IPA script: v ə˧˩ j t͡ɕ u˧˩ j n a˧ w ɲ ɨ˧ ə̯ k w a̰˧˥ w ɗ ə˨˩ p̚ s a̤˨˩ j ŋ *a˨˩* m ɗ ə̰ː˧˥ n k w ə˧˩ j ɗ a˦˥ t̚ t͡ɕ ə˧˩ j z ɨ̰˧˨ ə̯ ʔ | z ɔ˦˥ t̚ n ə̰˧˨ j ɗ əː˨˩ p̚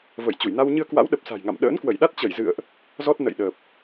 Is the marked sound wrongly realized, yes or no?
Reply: yes